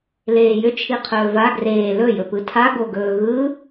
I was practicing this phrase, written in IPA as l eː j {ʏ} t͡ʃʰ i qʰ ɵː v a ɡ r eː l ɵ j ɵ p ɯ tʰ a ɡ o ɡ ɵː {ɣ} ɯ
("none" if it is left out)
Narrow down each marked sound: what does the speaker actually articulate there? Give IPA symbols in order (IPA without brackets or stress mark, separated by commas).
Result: ʏ, ɣ